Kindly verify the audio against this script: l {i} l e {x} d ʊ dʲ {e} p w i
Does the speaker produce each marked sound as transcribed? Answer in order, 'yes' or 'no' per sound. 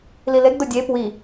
yes, no, yes

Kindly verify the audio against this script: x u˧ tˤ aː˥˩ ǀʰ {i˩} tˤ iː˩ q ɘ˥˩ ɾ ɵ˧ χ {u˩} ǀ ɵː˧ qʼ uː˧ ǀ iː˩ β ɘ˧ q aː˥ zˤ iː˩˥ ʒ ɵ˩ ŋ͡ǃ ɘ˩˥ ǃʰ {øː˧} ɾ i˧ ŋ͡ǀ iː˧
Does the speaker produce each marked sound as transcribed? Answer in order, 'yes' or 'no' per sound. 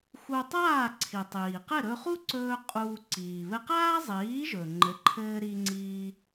yes, no, no

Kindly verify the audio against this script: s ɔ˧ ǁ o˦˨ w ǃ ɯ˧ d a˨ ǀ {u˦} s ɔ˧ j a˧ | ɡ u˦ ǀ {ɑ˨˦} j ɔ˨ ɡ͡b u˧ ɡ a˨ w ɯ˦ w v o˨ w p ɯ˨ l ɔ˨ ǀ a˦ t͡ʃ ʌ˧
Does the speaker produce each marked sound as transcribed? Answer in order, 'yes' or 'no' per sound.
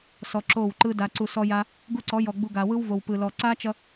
no, no

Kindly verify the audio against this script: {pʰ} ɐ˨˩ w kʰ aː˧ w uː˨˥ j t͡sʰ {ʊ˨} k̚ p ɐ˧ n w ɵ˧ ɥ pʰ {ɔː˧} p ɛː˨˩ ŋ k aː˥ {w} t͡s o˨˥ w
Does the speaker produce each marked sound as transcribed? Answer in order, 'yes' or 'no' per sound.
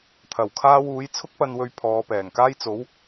no, no, no, no

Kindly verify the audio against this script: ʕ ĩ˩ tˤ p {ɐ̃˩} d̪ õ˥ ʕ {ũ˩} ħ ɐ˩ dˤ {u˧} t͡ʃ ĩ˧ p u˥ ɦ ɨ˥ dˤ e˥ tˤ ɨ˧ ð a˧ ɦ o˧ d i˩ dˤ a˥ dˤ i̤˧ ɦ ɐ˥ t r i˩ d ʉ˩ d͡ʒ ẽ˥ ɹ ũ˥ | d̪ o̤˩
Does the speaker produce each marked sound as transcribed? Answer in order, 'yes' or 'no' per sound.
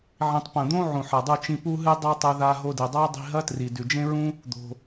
yes, yes, yes

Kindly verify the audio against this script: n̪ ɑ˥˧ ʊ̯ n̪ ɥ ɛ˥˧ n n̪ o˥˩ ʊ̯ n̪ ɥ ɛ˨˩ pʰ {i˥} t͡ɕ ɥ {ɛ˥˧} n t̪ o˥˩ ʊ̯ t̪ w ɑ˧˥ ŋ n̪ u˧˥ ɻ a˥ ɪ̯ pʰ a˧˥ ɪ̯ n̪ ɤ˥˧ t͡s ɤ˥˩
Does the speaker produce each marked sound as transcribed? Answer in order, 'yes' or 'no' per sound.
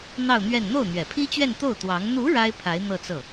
yes, yes

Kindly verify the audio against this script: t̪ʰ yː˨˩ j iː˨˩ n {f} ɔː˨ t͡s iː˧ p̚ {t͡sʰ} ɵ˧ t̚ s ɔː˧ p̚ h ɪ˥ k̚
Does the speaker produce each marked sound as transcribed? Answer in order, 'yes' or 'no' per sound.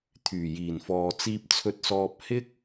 yes, yes

